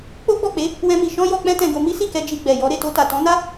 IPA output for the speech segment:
k͡p o˦ ɡ͡b ɔ˦˨ k͡p e˨˦ | w ɛ̃˦ m i˧ ʃ ɔ̃˦ j ɔ˧ k͡p ɛ̃˦ t ɛ̃˧ ɡ o˧ m i˦ s i˦˨ k ɛ˧ d͡ʒ i˧ ɡ͡b ɛ˨ j ɔ˨˦ ɾ e˦˨ t o˧ t a˨ t ɔ̃˨˦ n a˦

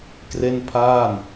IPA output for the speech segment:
k r e˥˩ n pʰ aː˥˩ n

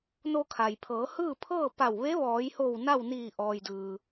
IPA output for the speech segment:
n o˧ kʰ a˩ j pʰ ɤː˩˧ h ɯː˥˨ pʰ ɤː˥˨ p a˧˩ w ʋ e˧˥ ʋ ɔː˩˧ j h o˧˩ w n a˥˨ w n iː˧˩ ʔ ɔː˩ j d ɯː˩

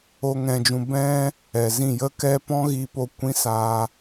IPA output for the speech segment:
o˦ ŋ ɛ̃˧ d͡ʒ ũ˧ b ɛ̃˦ | ɛ˨ z ĩ˦˨ j ə˦ k ɛ˦ p ɔ̃˦ ɣ iː˧ p o˧ kʷ ĩ˦ s aː˧

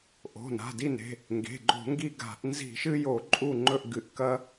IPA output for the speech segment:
ʔ o̤˩˧˩ n a̤˩˧˩ d i˦˨ n e̤˩˧˩ | ŋ ɡ e̤˩˧˩ ɡ͡ǃ o̤˧˩˧ ŋ ɡ i˦˨ ɡ a̤˧˩˧ ʔ n z i̤˧˩˧ ʃ ɨ˦ j o˧˩˧ ǃʼ u˦˨ ŋ͡ǃ ɵ˦˨ ʔ ɡ ɨ˧˩˧ ʔ k ɐ˦

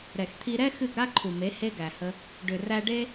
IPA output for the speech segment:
ɾ ɛ˨ x t̪ʰ i˧ ɾ ɛ˦ x ɨ˦˨ ɡ ɾ a˦ ǃʰ u˨ m e˨˦ h e˧ ɡ æ˨ h ə˧ | ɖ ʏ˨ r æ˧ ɖ e˦

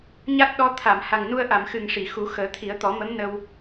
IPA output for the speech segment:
ɲ a˦˥ t̚ ɗ ɔ˧˥ t̪ʰ a˨˩˨ m h a˨˩ ŋ n u˧ ə̯ ʔ a˨˩˨ m x ɨ˨˩ ŋ ʂ i˨˩˨ x u˨˩˦ x əː˨˩˦ t̪ʰ i˨˩˦ ə̯ t̪ ɔ˨˩˦ m ə˧˥ m n ə˧ w

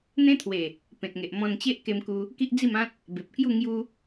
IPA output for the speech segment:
n̪ ẽ˦ t̪ʰ w e˨˩ | p ẽ˨ t̚ ŋ e˨ ʔ m ɔ̃˧ n t͡ɕ e˦ ʔ k e˧ m k u˧ | k i˦ ʔ d͡z i˥˧ m ã˦ t̚ | b e˨ p̚ k j u˥˧ ŋ j u˧

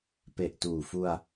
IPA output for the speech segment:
p e˨˩ ʔ t uː˨˩ f u˧ a̯

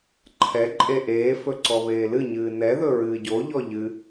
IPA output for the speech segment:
ǃʰ ɛ ǃʼ e ʔ eː f ɵ ǀ ɔ β eː l ɨ ɲ ɨː n ɛ ð ɵ ɹ ɨː ɟ o ʎ ɔ ʎ ɨ

